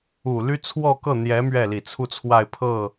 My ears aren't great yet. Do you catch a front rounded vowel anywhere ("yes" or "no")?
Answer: yes